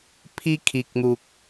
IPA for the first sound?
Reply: pʰ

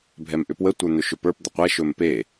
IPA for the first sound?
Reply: bʱ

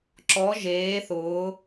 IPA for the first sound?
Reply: ǁ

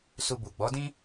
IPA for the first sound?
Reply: s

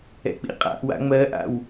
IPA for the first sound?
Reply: ɛ̰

